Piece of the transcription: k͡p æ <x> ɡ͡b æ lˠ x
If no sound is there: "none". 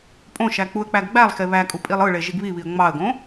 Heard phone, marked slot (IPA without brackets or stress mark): ɡ